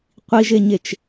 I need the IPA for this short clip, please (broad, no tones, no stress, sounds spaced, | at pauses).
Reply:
qʷ i ʒ e ɲ e t͡ʃ